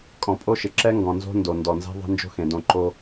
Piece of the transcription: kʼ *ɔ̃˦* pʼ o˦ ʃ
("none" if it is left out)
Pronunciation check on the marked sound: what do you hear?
ɔ̃˨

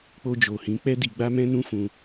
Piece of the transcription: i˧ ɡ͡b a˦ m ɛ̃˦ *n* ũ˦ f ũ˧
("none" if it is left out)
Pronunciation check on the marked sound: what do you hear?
n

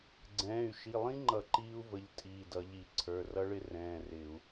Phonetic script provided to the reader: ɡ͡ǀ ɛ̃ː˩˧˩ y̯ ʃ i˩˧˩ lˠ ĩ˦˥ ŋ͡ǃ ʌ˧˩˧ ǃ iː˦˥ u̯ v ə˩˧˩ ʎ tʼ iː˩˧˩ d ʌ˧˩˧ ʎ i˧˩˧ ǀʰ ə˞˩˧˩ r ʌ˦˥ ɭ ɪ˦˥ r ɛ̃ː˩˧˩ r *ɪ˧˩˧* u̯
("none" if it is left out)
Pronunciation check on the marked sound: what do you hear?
ɪ˧˩˧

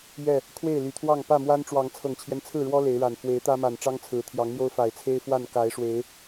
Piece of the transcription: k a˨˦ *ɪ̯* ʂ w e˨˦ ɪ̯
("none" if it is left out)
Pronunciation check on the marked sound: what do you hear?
ɪ̯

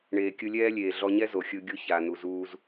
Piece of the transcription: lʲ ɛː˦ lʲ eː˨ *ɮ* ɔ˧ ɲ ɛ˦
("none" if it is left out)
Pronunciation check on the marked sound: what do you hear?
ɮ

